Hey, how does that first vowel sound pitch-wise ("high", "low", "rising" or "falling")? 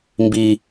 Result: high